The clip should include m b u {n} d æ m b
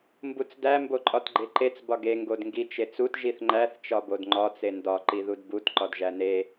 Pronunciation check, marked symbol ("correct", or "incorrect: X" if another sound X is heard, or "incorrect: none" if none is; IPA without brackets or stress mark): incorrect: t͡s